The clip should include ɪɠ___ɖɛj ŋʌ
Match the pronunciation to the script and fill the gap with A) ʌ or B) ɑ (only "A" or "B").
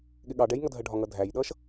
B